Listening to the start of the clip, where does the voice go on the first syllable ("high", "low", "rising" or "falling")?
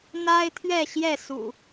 high